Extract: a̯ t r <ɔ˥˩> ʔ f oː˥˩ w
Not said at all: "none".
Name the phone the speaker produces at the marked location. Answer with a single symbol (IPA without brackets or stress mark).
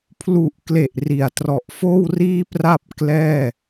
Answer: ɔ˨˩